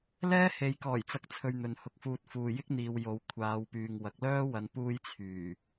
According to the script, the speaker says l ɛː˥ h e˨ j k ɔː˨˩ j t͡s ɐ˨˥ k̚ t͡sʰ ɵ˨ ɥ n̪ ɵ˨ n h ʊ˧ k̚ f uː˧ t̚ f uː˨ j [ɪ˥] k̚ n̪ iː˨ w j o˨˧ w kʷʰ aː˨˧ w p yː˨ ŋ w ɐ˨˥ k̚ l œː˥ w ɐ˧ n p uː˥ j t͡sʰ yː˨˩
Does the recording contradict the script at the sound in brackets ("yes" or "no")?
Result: no